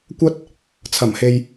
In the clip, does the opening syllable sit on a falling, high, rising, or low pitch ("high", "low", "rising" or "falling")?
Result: high